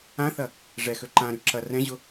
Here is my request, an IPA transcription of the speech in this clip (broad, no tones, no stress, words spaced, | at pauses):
ãθɐ | ʐɛxø ǃãɾy ǁɐ rɛ̃ʑʊ